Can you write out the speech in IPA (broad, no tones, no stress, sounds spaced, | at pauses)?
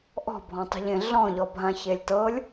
ʔ ɔ̤ bʱ ɔ̃ tˤ o̤ ʎ ẽ ɮ ɔ̃ ʎ ɔ bʱ ã ç e lʲ t ɤ lʲ